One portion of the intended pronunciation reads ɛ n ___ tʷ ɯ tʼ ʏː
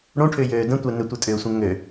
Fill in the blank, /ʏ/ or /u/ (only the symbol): ʏ